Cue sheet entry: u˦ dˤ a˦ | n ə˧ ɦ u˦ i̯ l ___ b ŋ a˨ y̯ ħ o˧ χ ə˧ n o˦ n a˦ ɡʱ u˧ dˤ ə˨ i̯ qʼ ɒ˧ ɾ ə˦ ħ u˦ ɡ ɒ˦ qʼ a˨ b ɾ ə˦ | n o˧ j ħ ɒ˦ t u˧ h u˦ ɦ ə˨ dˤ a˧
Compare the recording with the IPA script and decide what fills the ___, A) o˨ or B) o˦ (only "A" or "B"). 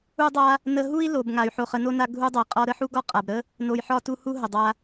A